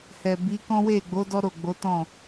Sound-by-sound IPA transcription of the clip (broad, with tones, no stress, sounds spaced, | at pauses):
h ɛ˨ b i˨˦ k ɔ̃˦ w e˦˨ ɡ͡b o˨˦ d ɔ˦ ɾ o˦˨ ɡ͡b o˨˦ t ɔ̃˦˨